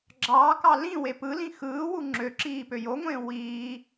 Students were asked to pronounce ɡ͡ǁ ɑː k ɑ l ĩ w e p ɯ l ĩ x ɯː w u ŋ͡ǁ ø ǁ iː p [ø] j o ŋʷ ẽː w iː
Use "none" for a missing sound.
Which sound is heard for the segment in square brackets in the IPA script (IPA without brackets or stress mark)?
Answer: ø